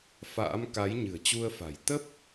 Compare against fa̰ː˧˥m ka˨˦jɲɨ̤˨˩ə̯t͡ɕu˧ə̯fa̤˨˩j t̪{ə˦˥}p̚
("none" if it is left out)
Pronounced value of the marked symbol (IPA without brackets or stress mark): ə˦˥